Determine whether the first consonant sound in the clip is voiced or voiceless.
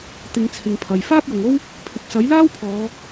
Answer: voiceless